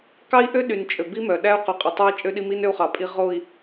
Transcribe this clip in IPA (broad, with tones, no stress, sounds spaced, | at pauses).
k ɑ˦ i̯ ʔ ø˦ ɗ y˨ n t͡ʃʼ ø˨ b i˦ m œ˨ ɗ æ˦ u̯ q y˨ qʼ œ˨ tˤ ø˦ i̯ t͡ʃʼ ø˦ ɗ i˦ m i˦ n ø˦ u̯ χ ɑ˨ pʼ i˦ ʁ o˦˨ i̯